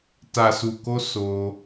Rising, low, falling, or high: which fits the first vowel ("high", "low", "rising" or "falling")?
low